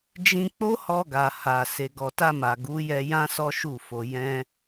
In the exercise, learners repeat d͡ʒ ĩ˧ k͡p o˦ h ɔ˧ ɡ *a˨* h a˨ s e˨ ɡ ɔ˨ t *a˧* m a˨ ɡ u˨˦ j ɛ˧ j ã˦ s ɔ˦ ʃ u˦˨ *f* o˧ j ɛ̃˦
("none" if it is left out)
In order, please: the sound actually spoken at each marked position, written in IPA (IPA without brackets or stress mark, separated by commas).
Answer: a˨, a˧, f